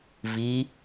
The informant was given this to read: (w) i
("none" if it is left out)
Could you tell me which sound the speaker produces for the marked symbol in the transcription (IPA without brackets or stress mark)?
v